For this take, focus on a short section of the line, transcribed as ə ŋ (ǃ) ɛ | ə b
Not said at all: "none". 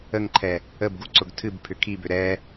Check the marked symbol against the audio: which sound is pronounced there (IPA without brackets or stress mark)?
ǃʰ